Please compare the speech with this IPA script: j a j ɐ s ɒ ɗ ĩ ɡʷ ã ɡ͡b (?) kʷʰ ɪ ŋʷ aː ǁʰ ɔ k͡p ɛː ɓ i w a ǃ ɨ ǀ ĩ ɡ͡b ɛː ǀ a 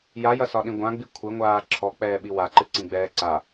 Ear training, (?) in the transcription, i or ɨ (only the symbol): i